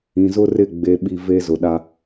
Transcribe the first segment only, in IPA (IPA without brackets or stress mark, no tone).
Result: ĩ